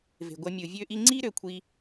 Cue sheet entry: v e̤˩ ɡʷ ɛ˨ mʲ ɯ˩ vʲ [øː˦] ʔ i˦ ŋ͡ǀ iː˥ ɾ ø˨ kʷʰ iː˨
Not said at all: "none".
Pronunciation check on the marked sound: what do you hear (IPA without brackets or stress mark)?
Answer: øː˦